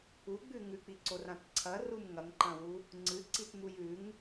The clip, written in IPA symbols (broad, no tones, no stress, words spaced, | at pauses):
uɡ͡bʉ ŋʉk͡piǀorãt ǀʰɐrum ŋɐŋǃɐ̃wu | ŋ͡ǀɨǀitmuj ʉŋ